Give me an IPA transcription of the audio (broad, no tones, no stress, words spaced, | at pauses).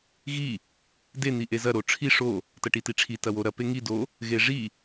ɣi | de n̪iʔezɐ ɾoʈ͡ʂʰi ʂo | tɐʈitiʈ͡ʂʰi tɐwoɾɐ peŋi do | ɣeʐi